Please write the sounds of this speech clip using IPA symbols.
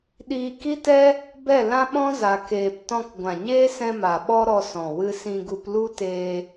ɗ iː˧ k i˦ t ɛ˦ | b ɛ˦˨ l ã˦ ɓ ɔ̃˦ z a˧ k eː˧ p t ɔ̃˧ k ɡʷ ã˨ ɲ eː˦ s ɛ̃˧ m a˨ ɓ ɔ˦ ɾ ɔ˧ s ɔ̃˨ w ɨ˧ s ĩ˧ ɡ u˧ p l u˦ t eː˧

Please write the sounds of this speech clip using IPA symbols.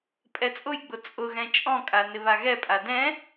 pʼ ɛ t͡sʼ ʊ j ɡ͡b ʊ t͡sʼ ʊ ɣ ɛ̃ t͡ʃʼ ɔ̃ kʼ a n ɪ β a ɣ ɛ pʼ a d ɛ̃

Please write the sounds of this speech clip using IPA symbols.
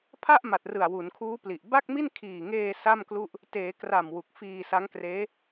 pʰ a˥˩ ʔ m a˨˩ t̚ r ɯ˨˩ a̯ w u˩˦ n kʰ uː˦˥ p l i˨˩ ʔ b a˥˩ k̚ m i˥˩ n kʰ iː˨˩ ŋ eː˧ s a˥˩ m k l u˥˩ ʔ | t eː˩˦ k r a˨˩ m w u˨˩ k̚ f iː˧ s a˦˥ ŋ k r eː˦˥

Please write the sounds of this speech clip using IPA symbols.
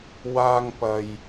w aː˧ ŋ p ɐ˨ j

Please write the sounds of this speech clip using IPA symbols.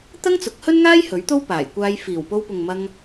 t̪ ɐ˥ ŋ t͡s ʊ˨˥ k̚ h ɵ˥ n ŋ aː˥ j h ɵ˨˥ ɥ t̪ o˥ w p aː˨˩ j kʷ aː˧ j f iː˨˩ w p o˧ w p ʊ˨ ŋ m ɐ˧ ŋ

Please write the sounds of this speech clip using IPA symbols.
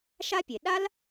ʃ a˥ pʲ e˩ ɗ a˥ l

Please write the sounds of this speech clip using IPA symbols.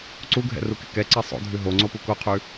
ǀ u ɡʱ ɛ̰ r u k ɪ k ɛ ǀ ɛ sˤ o̰ dʱ ʉ ɦ o ŋ͡ǀ o p u k o qʰ ʉ

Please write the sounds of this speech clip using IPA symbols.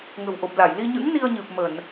ŋ ə̤˨˩ w ʔ o˨˩ p̚ l a˧˩ j l i˧ ɲ ɨ̰˧˥ ŋ n i˧ ə̯ ɲ ɨ˨˩ p̚ m ə˧˩˨ n

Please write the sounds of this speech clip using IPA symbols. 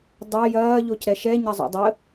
dˤ ɐ j ɐː ʎ o c ɾ ɛ ʃ ɛ ɲ ɐ zˤ o̰ dˤ ə

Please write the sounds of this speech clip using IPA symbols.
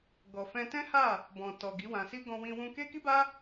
ɡ ɔ˨ f ɛ̃˧ t ɛ̃˦ h a˦˨ | b ɔ̃˨ t ɔ˨ ɡ i˨˦ w ã˧ s i˦ ɡ ɔ̃˧ w ĩ˧ w ũ˧ k e˦ k i˦ b a˦

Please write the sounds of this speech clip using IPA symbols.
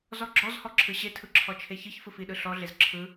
z ɔ ɡ͡ǁ ɔ z h ɔ ǁʰ ɯ ɕ e tʰ ɯ ǁʰ ɔ t͡ʃʰ e ç ɨ ç f ɯ f i ɗ ɯ ɬ ɔ ɮ e z ǁʰ ɯ

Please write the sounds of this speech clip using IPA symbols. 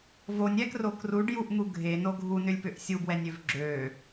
v o nʲ ɛ k r o k r u ɖ j u ʔ n̪ u ɡʱ e n o ɡʱ u n ʏ lʲ p ʏ ʔ sʲ u b w ɛ nʲ ø v ɡ͡ǁ ø

